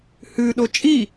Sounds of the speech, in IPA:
h ʉ ɗ o t͡ʃʼ i

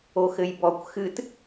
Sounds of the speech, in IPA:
o x ɘ j b ɔ kʷ x ɨ t

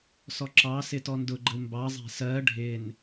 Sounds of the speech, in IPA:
s ɔ ǁ ɑ s ɪ t ɔ n d ʊ ɡ͡ǃ ə̤ u̯ m b ɑ zˤ æ̤ s ɜ ɖʱ ɪ n

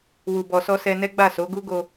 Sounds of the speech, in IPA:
w u˨ b ɔ˨ s ɔ˧ s ɛ˧ n ɛ˦ ɡ͡b a˦˨ s o˨˦ ɡ u˦ ɡ o˧

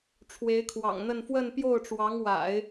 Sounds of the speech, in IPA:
ʈ͡ʂʰ w e˧˥ ɪ̯ kʰ w ɑ̰˨˩ ŋ n̪ ə˥˧ n f w ə˥˧ n p j o˥˩ ʊ̯ ʈ͡ʂ w ɑ˧˥ ŋ w a̰˨˩˦ ɪ̯

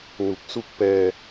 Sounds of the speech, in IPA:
n u˨˩ k̚ s u˥˩ k̚ p ɛː˧

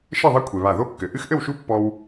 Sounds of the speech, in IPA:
ʃ ɘ˥˨ ðˤ ɛ˦ kʷʰ e˩ β a˧˩ ð o˦ kː ɘ˩ ʔ ɨ˦ x ʔ ɘ˥˨ w ʃ u˦ pː ɔ˦ w

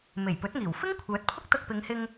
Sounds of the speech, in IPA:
m e˨˩ j p ɵ˨˥ t̚ ŋ iː˨˩ w f ɪ˥ ŋ kʷʰ œː˨˥ t̚ pʰ ʊ˥ k̚ t̪ ɐ˧ k̚ p ɪ˨˧ ŋ h ɪ˧ ŋ

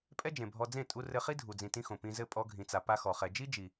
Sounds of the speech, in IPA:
pʼ ɛ˦ d͡ʒ ẽ˨ bʱ ɔ˧ d͡z ẽ˦˨ tʼ u˦ r ɘ˦ χ i˦ dʱ u˨ d͡z ĩ˨ t ĩ˧ x õ˨ p ĩ˧ z ɘ˦˨ pʼ ɔ˧ ɡʱ ĩ˨ t͡s a˨ p a˧ x ɔ˨ χ ɛ˨ d͡ʒ i˦ d͡ʒ i˨

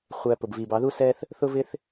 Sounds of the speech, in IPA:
χʷ æ˧ p ʊ˨ b v iː˨ b ɑ˨˦ ð u˦ s ɛː˦ θ | θ ʊ˦ v ɪ˦ θ

